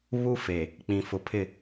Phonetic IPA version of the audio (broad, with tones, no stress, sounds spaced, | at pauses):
β u˦ f e˨ | k͡p ĩ˨ f ʊ˨ pʰ ɪ˦˨